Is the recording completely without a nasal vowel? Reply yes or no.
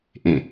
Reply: no